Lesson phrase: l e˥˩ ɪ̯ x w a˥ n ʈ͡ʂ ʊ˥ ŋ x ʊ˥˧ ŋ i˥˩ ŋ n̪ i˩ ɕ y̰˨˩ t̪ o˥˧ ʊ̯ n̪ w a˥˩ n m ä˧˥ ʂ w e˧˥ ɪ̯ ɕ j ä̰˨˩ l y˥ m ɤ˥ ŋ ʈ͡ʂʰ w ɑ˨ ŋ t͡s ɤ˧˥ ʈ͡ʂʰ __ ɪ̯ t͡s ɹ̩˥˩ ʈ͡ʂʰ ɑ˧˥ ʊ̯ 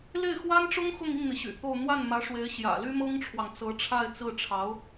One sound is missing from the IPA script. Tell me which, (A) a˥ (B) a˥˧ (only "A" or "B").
B